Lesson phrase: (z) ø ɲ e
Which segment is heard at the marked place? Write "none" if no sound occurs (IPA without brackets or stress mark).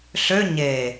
ɬ